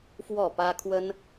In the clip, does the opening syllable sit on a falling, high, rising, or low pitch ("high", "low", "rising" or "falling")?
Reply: falling